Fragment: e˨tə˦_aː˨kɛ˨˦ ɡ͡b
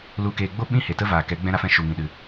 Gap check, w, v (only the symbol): v